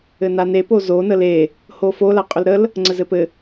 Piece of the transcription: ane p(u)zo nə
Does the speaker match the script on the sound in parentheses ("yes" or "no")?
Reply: no